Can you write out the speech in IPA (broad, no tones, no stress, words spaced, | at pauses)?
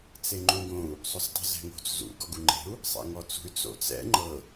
t͡seŋ͡ǃũɡõu̯ | sˤostˤṳzɛ̤ŋo̤t͡s zṵ ɡɔɡuŋ͡ǃe̤u̯ | sˤɛ̰ŋɔt͡sṳy̯ t͡so̰t͡sɛ̰ ŋ͡ǃɤ